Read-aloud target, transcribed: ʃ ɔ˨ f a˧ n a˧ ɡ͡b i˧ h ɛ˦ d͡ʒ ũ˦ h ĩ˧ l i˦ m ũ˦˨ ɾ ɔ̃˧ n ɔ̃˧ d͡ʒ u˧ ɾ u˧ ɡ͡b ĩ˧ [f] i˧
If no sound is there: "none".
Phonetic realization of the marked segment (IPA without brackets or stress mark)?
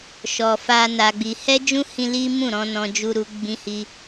h